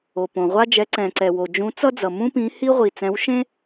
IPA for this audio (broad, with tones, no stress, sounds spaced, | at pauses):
o˩ p õ˩ ʁʷ a˥ d͡ʒ ɛ˨˥ ǀ ɛ̃˩ ǀ ɛ˩ w o˩ d͡ʒ ũ˨˥ t͡s ʌ˥ d͡z ʌ˩ m ũ˥ p ĩ˨˥ h i˥ ʁʷ i˩ t͡s ɛ̃˨˥ w ʃ ẽ˥